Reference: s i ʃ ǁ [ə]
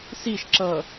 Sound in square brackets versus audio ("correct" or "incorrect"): incorrect